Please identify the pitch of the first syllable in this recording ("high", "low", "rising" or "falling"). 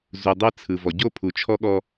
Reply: low